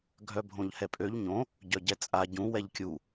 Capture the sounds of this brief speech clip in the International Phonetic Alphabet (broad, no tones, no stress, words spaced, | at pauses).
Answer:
ɡʱœbʱõʎhɛpʼøʎ ɲõ | ɟœɟɛt͡sʼa ɟũ wɛʎkʲu